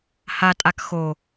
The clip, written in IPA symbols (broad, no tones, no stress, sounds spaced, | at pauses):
h a tʼ a k x o